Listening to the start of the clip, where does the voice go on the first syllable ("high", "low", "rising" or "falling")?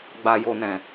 low